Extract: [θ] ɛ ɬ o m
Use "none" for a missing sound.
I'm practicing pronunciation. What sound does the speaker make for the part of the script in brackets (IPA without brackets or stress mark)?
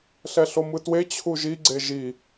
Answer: ɬ